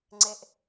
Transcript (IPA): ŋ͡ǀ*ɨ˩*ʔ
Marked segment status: incorrect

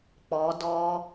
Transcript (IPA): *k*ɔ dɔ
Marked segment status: incorrect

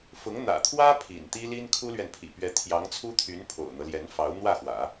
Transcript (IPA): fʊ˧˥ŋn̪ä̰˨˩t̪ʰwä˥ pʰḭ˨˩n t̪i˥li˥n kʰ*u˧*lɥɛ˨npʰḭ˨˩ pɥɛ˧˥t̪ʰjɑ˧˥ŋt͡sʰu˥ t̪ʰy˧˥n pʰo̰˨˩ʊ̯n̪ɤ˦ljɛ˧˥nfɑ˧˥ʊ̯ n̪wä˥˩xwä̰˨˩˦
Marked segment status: incorrect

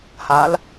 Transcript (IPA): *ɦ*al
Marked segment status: incorrect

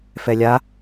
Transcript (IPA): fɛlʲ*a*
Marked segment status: correct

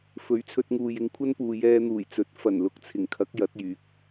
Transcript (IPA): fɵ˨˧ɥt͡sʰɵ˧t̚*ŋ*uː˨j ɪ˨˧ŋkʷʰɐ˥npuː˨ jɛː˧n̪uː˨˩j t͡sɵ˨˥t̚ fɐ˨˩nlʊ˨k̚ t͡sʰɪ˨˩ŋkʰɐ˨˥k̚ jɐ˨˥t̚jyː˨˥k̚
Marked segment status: correct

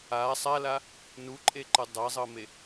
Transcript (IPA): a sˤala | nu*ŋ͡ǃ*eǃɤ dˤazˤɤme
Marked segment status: incorrect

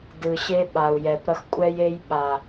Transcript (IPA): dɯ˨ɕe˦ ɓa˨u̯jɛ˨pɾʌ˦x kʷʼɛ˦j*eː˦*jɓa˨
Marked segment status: incorrect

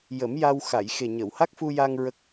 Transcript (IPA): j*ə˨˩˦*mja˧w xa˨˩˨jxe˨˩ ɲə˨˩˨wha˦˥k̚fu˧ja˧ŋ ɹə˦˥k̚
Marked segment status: correct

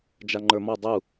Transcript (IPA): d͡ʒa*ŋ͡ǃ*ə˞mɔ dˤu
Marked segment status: correct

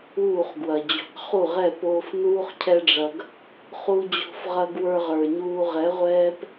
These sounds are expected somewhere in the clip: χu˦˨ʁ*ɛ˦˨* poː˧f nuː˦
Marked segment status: correct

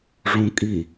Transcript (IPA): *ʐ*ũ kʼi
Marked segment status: correct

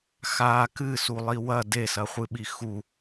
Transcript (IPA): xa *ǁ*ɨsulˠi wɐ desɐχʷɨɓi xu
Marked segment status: incorrect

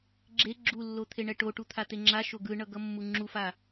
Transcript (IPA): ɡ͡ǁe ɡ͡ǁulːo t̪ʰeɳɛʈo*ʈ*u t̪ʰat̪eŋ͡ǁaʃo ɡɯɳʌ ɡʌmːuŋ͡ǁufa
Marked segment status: correct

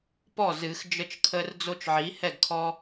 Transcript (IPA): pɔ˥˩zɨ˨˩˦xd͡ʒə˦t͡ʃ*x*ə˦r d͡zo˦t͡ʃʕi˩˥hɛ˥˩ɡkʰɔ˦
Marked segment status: incorrect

